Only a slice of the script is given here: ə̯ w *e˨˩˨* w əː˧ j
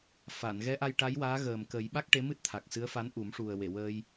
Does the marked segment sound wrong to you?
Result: no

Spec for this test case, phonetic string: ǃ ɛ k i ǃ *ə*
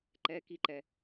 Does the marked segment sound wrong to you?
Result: yes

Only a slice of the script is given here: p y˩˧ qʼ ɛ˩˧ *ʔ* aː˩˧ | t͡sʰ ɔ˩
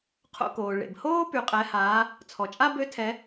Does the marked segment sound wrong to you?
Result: yes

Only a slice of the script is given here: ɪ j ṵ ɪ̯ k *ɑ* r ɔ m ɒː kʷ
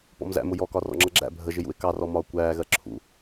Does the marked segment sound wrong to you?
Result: no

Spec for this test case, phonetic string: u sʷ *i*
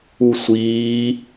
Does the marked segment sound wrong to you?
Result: yes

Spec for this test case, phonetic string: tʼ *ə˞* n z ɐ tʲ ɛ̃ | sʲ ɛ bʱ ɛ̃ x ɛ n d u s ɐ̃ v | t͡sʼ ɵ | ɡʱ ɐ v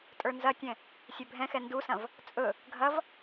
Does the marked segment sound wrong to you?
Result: no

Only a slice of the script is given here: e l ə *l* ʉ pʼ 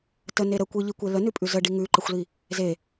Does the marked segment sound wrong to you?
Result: yes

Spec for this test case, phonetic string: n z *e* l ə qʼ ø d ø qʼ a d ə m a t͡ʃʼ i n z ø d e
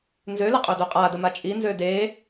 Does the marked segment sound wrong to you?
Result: yes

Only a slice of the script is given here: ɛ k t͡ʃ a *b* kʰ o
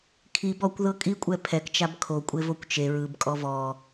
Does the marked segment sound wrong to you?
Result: no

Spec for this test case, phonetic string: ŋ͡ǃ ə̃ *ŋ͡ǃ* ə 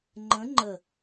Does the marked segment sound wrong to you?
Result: no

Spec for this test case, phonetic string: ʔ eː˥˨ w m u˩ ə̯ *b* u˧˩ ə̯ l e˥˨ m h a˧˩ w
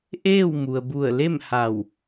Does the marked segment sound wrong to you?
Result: no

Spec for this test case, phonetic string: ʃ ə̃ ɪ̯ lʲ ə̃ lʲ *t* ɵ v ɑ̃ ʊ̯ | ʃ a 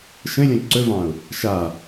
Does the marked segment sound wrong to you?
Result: yes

